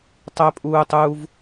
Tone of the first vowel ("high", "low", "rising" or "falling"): high